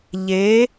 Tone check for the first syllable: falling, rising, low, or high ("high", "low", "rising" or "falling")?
rising